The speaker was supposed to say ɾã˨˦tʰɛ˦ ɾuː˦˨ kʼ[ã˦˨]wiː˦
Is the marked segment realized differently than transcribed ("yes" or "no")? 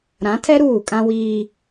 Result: yes